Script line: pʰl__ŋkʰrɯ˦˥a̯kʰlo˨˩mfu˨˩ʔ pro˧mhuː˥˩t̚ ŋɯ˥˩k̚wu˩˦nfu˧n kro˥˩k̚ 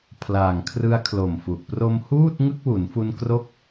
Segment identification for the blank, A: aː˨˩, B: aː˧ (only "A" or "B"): A